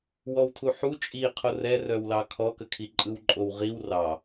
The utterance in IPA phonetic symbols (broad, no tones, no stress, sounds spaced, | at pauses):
w ɔ w tʰ u ħ u t͡ʃʼ i qʰ o r ɛ r œ w l ɑ kʰ ɔ k ə kʰ i ǃʼ ɯ w ǃʼ o w ʁ i w r ɑ